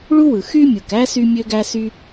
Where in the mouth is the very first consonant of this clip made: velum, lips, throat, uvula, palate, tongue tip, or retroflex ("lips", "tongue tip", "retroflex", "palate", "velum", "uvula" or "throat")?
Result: retroflex